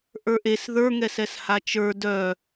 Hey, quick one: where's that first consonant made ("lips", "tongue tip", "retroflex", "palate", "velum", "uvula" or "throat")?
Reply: throat